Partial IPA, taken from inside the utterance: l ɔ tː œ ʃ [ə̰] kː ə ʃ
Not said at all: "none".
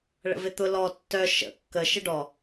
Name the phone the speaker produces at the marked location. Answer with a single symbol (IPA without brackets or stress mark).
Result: ə̰